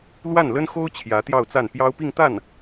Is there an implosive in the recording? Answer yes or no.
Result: no